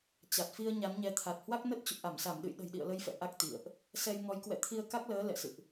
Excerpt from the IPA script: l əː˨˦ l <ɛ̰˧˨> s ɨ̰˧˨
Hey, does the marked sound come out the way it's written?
yes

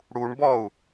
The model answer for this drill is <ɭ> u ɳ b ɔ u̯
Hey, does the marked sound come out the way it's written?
no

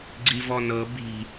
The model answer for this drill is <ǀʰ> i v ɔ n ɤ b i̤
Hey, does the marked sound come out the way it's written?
no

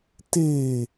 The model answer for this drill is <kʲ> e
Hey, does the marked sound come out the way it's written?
no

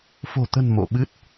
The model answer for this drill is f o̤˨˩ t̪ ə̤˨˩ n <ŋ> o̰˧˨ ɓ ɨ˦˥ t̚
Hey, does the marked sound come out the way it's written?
no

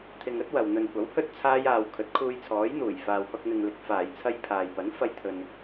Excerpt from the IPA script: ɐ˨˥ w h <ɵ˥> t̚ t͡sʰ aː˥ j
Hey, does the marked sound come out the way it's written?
yes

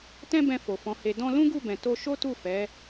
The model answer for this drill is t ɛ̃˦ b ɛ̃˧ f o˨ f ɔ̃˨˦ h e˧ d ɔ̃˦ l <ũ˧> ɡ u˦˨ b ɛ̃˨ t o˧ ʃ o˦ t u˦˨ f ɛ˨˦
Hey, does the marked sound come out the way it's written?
no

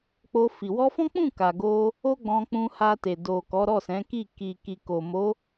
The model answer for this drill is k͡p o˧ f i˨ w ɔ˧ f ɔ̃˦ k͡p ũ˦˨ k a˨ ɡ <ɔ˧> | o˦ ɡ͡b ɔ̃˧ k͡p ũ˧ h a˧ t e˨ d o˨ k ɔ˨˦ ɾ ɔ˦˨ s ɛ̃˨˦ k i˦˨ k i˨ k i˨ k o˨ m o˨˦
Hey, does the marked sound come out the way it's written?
no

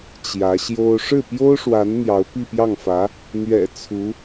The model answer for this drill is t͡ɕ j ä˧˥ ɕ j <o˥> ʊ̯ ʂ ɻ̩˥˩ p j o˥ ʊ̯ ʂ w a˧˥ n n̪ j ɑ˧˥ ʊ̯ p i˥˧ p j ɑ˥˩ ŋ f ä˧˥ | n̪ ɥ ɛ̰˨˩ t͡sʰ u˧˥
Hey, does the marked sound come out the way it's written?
yes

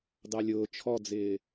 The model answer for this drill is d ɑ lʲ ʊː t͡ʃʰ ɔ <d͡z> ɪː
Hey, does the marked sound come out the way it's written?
yes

